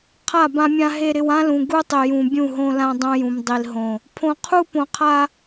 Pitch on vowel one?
falling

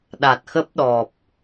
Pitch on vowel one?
low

